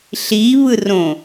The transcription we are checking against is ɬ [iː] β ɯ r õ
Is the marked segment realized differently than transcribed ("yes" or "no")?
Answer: no